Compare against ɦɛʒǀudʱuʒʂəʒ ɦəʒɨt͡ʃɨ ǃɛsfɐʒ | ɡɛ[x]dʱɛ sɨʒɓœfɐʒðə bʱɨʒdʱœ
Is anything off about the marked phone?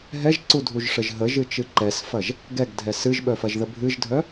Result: yes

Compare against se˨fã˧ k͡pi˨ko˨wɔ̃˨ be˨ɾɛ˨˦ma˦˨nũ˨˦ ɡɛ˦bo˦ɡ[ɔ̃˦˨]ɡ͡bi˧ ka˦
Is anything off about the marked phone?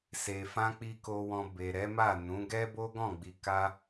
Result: no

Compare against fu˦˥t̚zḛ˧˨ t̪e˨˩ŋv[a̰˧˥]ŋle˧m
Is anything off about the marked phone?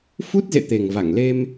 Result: yes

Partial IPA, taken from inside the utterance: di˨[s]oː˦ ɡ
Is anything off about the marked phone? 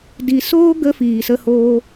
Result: no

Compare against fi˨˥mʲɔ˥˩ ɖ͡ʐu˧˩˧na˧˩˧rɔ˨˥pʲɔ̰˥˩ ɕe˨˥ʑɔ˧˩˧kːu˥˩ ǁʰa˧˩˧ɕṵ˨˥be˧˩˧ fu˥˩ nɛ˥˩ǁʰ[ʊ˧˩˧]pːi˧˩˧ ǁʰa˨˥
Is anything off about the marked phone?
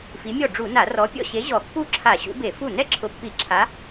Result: yes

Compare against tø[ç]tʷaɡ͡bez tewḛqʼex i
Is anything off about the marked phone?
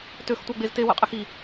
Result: yes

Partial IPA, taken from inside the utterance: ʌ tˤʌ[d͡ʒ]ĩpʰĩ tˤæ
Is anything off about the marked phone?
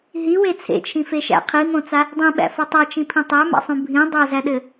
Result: yes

